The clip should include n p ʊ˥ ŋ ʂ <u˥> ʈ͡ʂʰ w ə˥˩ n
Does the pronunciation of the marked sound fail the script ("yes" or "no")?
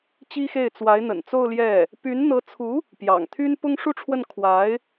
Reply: no